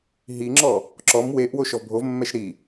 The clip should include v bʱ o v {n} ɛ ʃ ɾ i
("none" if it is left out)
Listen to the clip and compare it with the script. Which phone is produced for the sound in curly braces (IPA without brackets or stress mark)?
mː